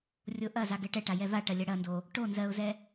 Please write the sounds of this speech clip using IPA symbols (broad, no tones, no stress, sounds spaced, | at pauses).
rʲ o ʔ ɐ z a ɡ ɛ ʈ ɛ ʈ a j ɛ v a ʈ ɐ lʲ ɐ ɽ ɐ n d o | ʈ o n z ɜ ʊ̯ z ɛ